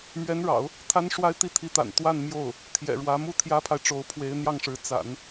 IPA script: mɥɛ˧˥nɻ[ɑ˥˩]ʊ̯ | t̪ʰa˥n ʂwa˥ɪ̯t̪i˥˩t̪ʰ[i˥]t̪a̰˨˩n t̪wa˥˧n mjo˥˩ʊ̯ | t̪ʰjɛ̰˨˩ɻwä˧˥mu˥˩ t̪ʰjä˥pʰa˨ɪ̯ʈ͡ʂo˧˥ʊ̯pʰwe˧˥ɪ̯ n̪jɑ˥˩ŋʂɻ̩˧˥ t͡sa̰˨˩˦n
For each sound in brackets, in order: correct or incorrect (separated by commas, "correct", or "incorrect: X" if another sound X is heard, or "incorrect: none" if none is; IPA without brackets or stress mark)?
incorrect: ɑ̰˨˩˦, incorrect: i˧˥